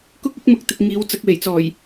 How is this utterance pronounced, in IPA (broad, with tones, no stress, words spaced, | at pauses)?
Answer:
kʊ˥k̚ ɪ˥k̚mʊ˧k̚t̪ɪ˨k̚ ŋiː˨˧w t͡sɐ˨˥k̚we˨˩jt͡sɔː˨˩j